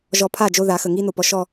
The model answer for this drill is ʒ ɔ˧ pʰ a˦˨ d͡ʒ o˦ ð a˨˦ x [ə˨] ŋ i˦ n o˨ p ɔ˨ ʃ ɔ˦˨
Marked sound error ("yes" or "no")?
no